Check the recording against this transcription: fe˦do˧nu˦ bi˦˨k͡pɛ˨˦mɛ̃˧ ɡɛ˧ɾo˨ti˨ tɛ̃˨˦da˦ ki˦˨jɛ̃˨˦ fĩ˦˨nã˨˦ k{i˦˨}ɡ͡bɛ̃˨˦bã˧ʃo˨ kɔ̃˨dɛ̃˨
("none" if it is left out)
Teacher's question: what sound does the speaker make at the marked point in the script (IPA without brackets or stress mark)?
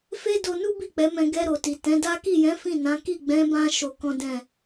i˦˨